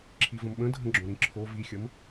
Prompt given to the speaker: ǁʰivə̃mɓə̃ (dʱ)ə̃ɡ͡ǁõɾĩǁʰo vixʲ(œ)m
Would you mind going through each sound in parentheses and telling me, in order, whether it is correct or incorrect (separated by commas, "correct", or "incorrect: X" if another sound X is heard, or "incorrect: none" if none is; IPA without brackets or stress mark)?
correct, incorrect: ə